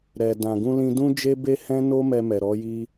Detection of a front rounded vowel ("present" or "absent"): absent